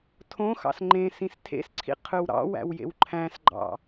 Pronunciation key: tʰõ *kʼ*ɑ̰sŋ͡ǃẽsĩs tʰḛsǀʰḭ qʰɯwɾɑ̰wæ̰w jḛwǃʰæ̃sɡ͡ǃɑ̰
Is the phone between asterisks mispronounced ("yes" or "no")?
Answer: yes